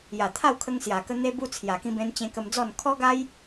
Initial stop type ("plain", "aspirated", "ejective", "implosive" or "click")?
aspirated